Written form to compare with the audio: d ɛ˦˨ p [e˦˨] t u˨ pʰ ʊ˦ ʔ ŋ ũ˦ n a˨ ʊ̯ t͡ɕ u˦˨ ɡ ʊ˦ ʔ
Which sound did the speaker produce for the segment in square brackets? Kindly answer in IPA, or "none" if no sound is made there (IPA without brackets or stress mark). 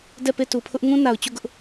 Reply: e˦˨